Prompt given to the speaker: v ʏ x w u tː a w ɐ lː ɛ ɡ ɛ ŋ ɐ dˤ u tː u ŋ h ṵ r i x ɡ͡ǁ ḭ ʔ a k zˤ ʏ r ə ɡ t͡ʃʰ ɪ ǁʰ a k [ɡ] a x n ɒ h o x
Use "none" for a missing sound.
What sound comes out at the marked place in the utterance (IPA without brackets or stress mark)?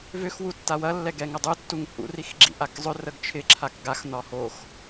ɡ